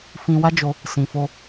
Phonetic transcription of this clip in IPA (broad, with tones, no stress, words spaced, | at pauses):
fĩ˧wa˦d͡ʒo˧ | sĩ˨fo˧